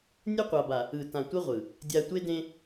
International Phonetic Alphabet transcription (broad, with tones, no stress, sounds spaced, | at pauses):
nʲ ɯ˦ qʷ a˨ b a˨ | ɯ˨ t ã˨ tʷ ɯ˦ ʁʷ ɯ˨ | dʲ a˨ tʷ e˦ d ẽ˦